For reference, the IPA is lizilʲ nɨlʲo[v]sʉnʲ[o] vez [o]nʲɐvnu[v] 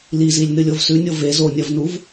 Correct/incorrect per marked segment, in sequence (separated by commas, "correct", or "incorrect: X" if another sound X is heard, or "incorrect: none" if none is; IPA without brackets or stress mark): correct, correct, correct, correct